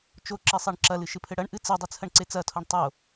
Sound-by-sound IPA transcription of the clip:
t͡ʃ o ǁ i sˤ i ɳ ǁ ɐ l ɨ ʃ ɨ pʰ ɘ ɽ ɐ ɳ ʔ ɨ t͡s ɨ dˤ ɨ t͡sʰ ɐ ɳ ǀ e t͡s ɐ tʰ o ɳ tˤ o

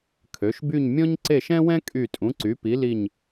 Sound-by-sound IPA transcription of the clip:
kʰ ø˩˧ ʃ b y˦˨ ɲ mʲ ɔ̃˥ ɲ ǀ e˦˨ ʃ ɛ̃˥ w ɛ̃˥ kʼ y˦˨ tʼ ũ˨˥ ǀ y˨˥ p i˨˥ l i˦˨ ɲ

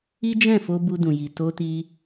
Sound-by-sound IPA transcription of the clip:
i˦ d͡ʒ ɛ̃˦˨ f o˧ b u˧ d ũ˨ j i˨ t o˧ t i˧

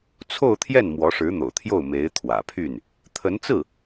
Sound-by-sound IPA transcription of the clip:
t͡sʰ o˥˧ ʊ̯ t̪ʰ j ɛ˥˩ n m w ɔ˧˥ ʂ ɻ̩˧˥ n̪ o̰˨˩ ʊ̯ t̪ʰ j o˥˩ ʊ̯ m e˧˥ ɪ̯ t̪ʰ w ä̰˨˩ pʰ y˥˩ n | t̪ʰ ə˧˥ n t͡s ɹ̩˥˩

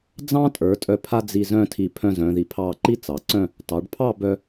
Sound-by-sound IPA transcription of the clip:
d͡z ɑ̃˥ tʼ ə˞˩˧ tʼ œ˧˩ pʰ a˥ d͡z i˧ z œ̃˥˧ tʰ i˧˩ pʰ œ̃˧ z œ̃˩˧ ð i˧˩ pʰ ɑ˥˧ ǃ i˥ t͡s ɑ˩˧ ǀ œ̃˥˧ | t ɑ˩˧ ɖ pʰ ɑ˥˧ b œ˧

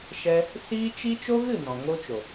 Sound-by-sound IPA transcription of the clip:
ʃ ɛ˧ | s iː˦ t͡ʃ i˦ t͡ʃ o˦ ɣ ɨ˦˨ n ɔ̃˨ ŋ o˦ t͡ʃ o˨

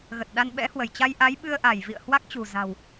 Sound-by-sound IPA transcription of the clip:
ɣ ə˨˩ t̚ ɗ a˧ n ɓ ɛ̰˧˥ h w ə˧˩ j t͡ɕ a˧ j ʔ a˨˦ j ɓ ɨ˧ ə̯ ʔ a˧˩ j v ḭ˧˨ ə̯ h w a˦˥ k̚ t͡ɕ ṳ˨˩ z a̤˨˩ w

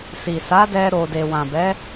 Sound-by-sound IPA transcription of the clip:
s i˨ s a˨˦ d ɛ˧ ɾ o˨ d e˨ w ã˨ b ɛ˨˦

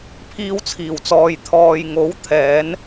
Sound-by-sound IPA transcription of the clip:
pʰ iː˧ w t͡sʰ iː˨˩ w t͡s ɔː˨ j t̪ʰ ɔː˨ j ŋ o˨˥ w t̪ʰ ɛː˨˧ n

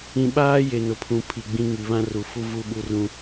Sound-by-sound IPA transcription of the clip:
ĩ˨ ɓ aː˦ j e˨ n ʊ˨ pʰ ũ˨ pʰ i˨ ɡ͡b ĩ˦ ŋ i˨ β ã˦ r u˨ f u˦ v u˦ ɓ u˦ r ũ˦

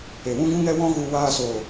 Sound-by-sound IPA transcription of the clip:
e˨ w ũ˦ ɡ ũ˦ ŋ ɛ˦ w ɔ̃˦ ɣ u˧ w aː˧ s oː˨

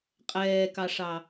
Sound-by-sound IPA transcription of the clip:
qʼ ɛː k ɑ ʂ ɑ

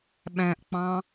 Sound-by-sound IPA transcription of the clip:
ɓ æ̃ ʔ k͡p ɑ̃

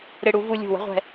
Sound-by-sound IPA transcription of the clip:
ɾ ɪ˧ ɽ u˩˧ v u˧ lʲ ṳ˧˩ w ə̤˥ ʁʷ ɛ̤˧

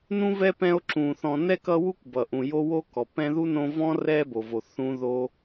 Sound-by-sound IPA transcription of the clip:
n ũ˥ v ɛ˥ p ɛ̃˦ o̯ ǁ ũ˩ θ ɔ̃˨ n ɛ˥ k ʌ˦ w u˥ kʷ b ʌ˩ ʔ ũ˩ j o˦ w o˥ k ɔ˩ p ɛ̃˦ ð u˥ n õ˦ v ɔ̃˥ r ɛ˦ b o˩ v o˩ θ ũ˥ ð o˥

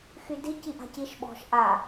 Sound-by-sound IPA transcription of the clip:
x y d i c i ʔ a̤ c i ʃ ɓ ɔ̤ ʃ ʔ a

